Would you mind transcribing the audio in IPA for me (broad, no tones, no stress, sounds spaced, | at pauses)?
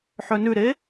ħ œ n ʉ ɾ e